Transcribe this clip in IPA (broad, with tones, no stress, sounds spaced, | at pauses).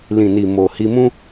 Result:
l ĩ˨ n i˨ m o˨ h i˧ m ũ˦